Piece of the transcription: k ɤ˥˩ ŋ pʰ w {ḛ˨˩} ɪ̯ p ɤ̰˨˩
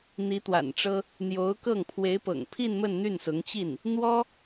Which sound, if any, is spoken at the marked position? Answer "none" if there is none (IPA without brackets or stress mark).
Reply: e˧˥